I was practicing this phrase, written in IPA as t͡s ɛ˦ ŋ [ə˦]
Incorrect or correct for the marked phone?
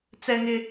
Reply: incorrect: ɪ˦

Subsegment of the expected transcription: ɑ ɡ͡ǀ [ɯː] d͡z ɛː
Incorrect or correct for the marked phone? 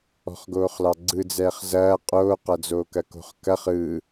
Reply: incorrect: ɯ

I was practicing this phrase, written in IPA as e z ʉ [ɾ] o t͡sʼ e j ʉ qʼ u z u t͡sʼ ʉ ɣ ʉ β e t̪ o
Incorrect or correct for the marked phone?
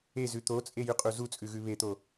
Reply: incorrect: t̪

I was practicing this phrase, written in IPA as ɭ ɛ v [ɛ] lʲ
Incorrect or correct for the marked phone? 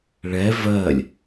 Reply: incorrect: ɜ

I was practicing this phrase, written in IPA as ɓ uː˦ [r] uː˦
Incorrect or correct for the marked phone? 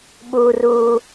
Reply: correct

